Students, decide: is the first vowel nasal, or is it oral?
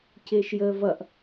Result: oral